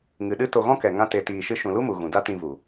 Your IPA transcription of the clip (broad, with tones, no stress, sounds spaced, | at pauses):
ŋ ɨ˨ ɗ ɨ˦ t o˧ ɣ ɔ̃˦ k ɛ˨ ŋ ã˦ t e˧ t iː˧ ʃ ɨ˦ ʃ ũ˨ l u˦ m u˨ ɣ ũ˨ d a˦ t ĩ˧ v u˨